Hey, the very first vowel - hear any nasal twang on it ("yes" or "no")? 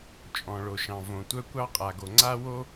yes